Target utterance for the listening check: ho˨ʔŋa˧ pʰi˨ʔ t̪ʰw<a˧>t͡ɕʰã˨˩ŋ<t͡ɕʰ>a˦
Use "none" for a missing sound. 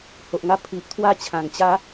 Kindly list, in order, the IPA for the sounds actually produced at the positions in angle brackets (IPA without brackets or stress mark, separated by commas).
a˥˧, t͡ɕ